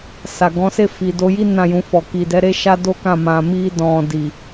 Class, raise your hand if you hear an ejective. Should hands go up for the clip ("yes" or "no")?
no